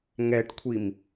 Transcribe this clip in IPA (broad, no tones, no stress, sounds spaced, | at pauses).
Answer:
ŋ ɛ ʈ kʷʰ i m